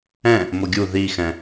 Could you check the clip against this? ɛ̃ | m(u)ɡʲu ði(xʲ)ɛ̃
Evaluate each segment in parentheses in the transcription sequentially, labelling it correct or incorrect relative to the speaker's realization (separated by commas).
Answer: incorrect, incorrect